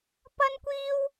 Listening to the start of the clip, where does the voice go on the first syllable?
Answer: high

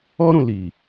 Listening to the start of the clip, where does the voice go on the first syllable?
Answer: high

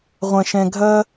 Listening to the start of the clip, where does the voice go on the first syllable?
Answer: low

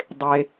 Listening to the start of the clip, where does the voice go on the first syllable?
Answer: low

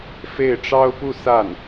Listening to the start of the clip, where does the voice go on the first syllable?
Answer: falling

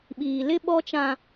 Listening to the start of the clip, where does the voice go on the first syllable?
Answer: low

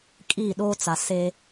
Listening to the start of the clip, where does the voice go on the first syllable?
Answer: falling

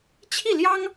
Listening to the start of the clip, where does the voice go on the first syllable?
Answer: falling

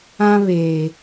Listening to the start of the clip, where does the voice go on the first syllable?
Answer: high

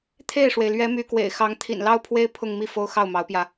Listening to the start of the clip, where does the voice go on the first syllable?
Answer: falling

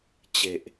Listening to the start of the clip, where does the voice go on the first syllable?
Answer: low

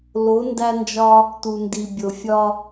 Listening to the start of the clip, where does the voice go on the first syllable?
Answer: rising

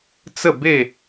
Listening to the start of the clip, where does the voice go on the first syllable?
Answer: falling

